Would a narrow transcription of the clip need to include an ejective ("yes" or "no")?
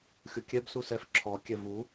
no